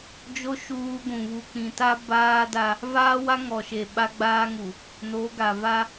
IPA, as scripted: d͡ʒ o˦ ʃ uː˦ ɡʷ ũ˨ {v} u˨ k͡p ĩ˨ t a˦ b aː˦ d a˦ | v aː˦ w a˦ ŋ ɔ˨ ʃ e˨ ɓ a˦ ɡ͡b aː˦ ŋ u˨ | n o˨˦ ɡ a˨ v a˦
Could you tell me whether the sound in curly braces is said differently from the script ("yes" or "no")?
yes